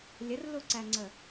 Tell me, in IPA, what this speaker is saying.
lʲ ə r l u ǀ æ ŋ͡ǀ ə

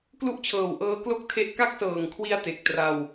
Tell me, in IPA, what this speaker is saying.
k l u˦˥ ʔ t͡ɕʰ ɤː˨˩ w ʔ ɤː˦˥ k l o˥˩ k̚ tʰ e˦˥ ʔ k a˥˩ k̚ s ɤː˨˩ ŋ kʰ w i˧ a̯ t e˨˩ k̚ t r a˧ w

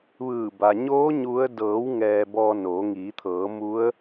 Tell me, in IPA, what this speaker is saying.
ʋ ɯː˧˩ b a˩ ɲ oː˧˥ ɲ u˧˥ ə̯ d ɤː˩˧ w ŋ ɛː˧ b ɔː˧ n oː˩˧ ŋ iː˩˧ t̪ʰ ɤː˩˧ m u˧˥ ə̯

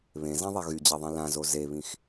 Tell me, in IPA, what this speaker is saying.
β ẽ z ã ðˤ ɛ ɣ y d͡ʑ ɛ ðˤ ĩ l ã z o z e β ĩ x

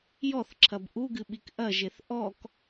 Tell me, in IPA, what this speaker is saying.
j ɔ θ ǁʰ ɐ b ʔ u ɡ ɨ ɓ i k ʔ ɐ ʒ e θ ʔ ɔ k

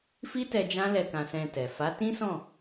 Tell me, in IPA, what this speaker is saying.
f i˦ t ɛ˧ d͡ʒ ã˦ l ɛ˦˨ k ã˧ s ɛ̃˧ t ɛ˨ f a˨˦ t ĩ˦ s ɔ̃˦˨

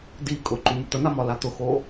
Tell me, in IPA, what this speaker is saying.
d i kʼ ʊ ǃ u m ʊ t̪ ə n̪ a m ɒ l a t̪ ʊ x o

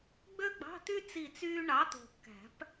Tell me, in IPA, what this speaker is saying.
ɡ͡b ø˥ ɡ͡b ɑ̤˧˥˧ t̪ y˥ t͡s i˦˨ t͡s yː˥ ɳ ɑ˨˥ t̪ o̤˨ kː æ̤˨˩˦ p

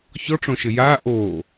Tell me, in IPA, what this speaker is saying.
ç ɔ ʈ͡ʂ õ ʃ ɘ j aː ʔ oː

